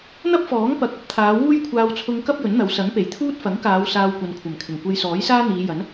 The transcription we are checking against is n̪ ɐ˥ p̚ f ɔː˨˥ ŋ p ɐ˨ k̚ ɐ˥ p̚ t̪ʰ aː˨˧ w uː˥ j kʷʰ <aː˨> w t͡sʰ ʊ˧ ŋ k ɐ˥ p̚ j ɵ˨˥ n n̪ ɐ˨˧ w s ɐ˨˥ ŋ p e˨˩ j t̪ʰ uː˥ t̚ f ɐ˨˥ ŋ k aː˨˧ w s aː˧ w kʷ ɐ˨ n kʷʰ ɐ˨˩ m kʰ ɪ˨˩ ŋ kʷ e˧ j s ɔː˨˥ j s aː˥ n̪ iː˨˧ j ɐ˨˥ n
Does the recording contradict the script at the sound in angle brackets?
yes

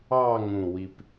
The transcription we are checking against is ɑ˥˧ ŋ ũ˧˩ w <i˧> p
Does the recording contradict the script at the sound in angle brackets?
no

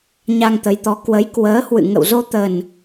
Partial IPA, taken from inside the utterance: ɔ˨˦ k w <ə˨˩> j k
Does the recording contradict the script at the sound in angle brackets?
yes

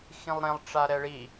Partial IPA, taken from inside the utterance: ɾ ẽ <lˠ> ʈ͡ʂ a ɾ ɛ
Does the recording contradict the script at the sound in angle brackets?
no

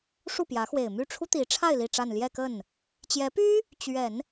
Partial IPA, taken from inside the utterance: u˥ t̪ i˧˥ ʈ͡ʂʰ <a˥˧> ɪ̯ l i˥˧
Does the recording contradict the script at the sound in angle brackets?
no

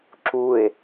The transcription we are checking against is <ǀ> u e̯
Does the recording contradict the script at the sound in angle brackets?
yes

